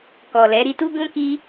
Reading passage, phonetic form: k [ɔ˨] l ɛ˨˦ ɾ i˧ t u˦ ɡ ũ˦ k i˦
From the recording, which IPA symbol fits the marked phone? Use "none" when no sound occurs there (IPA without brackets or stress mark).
ɔ˨